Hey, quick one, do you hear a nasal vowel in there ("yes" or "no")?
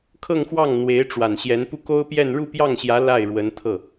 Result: no